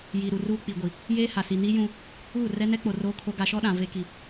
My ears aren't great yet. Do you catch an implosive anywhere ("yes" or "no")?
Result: yes